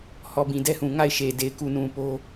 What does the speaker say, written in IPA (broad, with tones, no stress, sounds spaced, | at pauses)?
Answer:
h ɔ˨ b ĩ˨ d ɛ˦ h ũ˨ ŋ a˦˨ ɪ̯ ʃ e˨ d e˨ ɪ̯ k u˨ n ũ˨ p o˦